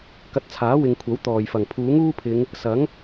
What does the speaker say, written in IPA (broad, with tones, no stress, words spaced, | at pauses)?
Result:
kɐ˧t̚t͡sʰaː˨˥wɪ˨ŋkʷʰɐ˨˥w t̪ɔː˨˩jfɐ˨˩ŋpʰuː˨˥ŋ uː˥pʰɪ˨˧ŋ | sɐ˨˥ŋ